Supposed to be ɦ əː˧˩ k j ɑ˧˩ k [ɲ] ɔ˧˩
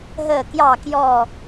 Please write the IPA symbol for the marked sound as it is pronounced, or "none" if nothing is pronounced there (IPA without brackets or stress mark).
j